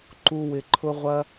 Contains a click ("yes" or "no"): yes